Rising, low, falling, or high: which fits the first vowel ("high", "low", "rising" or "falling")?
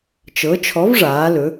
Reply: rising